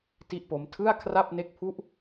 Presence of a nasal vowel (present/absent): absent